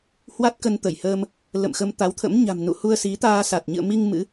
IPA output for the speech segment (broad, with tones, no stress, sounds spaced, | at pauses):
h w a˦˥ t̚ k ə˧ n t̪ ə˧˩ j h əː˧ m | l ə̰˧˨ m x ə˧ m t̪ a˨˦ w t̪ʰ ə̰˧˥ m ɲ a̤˨˩ m n ṵ˧˨ h u˧ ə̯ s i˨˦ t̪ aː˧ s a˨˩ t̚ ɲ ɨ̰˧˨ ə̯ m i˧ ŋ m ɨ̰˧˥